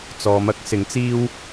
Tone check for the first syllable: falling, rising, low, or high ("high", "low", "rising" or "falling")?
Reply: low